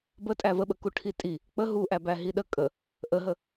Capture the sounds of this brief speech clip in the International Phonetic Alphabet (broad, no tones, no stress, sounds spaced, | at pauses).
b ə tʼ æ v ə ɓ ə k u ʈʰ i tʼ i | k͡p ə ɦ u ʔ æ b æ ɦ i ɗ ə kʼ ə | ʔ ə ɦ ə